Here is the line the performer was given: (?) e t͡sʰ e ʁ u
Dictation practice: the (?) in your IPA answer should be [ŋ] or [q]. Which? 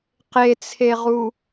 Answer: q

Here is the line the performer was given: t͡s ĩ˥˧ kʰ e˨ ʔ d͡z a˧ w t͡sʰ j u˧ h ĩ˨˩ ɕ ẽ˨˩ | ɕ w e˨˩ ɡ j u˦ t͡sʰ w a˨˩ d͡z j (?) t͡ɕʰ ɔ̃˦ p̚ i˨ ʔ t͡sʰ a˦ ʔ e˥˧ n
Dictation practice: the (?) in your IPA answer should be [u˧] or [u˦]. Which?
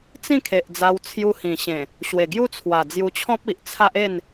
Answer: u˧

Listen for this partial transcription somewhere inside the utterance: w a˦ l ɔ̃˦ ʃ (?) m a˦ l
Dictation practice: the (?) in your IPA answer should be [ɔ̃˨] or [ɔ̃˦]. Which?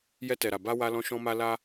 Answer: ɔ̃˦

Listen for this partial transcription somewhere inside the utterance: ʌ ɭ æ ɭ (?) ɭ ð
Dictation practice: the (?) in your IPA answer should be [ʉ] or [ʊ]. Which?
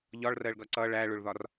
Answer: ʊ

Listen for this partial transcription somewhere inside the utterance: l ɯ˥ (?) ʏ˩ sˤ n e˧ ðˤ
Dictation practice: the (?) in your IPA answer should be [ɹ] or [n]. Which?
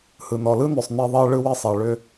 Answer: n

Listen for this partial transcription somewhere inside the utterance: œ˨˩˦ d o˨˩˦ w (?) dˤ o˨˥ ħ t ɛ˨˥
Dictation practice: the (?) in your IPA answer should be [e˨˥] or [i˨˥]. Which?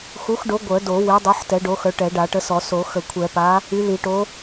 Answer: e˨˥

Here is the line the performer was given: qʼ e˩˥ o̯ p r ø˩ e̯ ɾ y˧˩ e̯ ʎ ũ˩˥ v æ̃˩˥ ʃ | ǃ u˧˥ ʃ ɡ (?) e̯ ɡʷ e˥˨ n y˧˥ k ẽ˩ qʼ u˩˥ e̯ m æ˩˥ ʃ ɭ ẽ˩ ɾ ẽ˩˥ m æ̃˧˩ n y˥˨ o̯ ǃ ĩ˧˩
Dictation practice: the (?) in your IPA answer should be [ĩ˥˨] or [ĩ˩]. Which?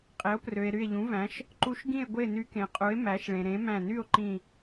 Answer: ĩ˥˨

